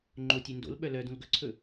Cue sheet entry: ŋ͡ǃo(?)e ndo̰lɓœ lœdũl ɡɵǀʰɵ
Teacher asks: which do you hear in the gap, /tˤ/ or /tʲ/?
tʲ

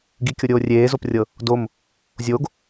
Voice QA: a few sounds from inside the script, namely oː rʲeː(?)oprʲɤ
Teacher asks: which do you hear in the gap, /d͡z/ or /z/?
z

